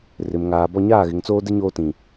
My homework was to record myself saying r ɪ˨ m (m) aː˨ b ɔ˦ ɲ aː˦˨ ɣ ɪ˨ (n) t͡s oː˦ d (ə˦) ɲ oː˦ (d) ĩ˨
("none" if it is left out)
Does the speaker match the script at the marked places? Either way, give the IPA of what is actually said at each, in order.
ŋ, ŋ, ɪ˦, t

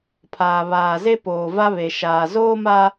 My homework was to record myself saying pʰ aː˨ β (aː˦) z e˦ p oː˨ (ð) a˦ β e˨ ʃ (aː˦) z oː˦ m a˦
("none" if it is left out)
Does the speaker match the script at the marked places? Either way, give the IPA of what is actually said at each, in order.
aː˨, v, aː˨

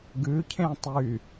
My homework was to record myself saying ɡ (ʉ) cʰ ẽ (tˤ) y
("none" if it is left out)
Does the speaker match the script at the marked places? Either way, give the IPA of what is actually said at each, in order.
ʉ, tˤ

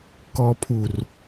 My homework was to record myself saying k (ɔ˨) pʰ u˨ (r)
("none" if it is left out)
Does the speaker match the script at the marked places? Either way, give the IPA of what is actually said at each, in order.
ɔ˨, r

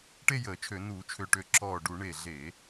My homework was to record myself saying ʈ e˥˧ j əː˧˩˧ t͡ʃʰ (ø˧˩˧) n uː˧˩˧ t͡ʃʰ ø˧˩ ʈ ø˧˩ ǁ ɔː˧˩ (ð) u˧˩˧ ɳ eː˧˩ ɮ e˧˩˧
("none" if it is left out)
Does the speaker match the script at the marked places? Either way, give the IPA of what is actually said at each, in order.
ø˧˩˧, ɖ

